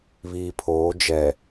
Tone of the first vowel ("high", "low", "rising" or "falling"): low